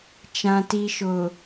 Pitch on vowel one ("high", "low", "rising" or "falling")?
low